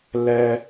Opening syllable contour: high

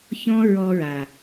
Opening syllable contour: high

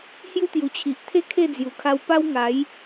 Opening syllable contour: high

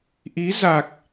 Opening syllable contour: rising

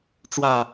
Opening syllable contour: low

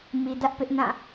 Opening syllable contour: low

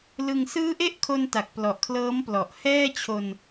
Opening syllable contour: low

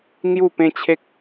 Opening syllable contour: falling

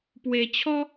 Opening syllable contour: low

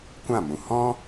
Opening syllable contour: falling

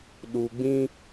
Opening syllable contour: low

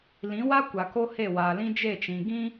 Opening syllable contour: rising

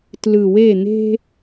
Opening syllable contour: low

